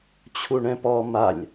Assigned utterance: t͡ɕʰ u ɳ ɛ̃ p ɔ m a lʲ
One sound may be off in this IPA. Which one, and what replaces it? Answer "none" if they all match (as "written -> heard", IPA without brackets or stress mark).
none